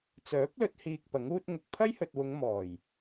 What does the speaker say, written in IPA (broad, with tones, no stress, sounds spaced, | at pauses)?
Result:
t͡s œː˨˥ p̚ l ɵ˨˥ t̚ h iː˧ k̚ p ɐ˨˥ ŋ uː˥ t̚ ŋ ʊ˨ k̚ pʰ ɐ˥ j h ɵ˨ t̚ w ʊ˨˧ ŋ m ɔː˨˩ j